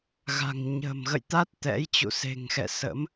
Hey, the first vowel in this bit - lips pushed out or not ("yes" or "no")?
no